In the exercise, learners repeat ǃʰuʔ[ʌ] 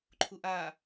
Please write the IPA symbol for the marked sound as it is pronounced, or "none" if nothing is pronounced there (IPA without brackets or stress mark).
a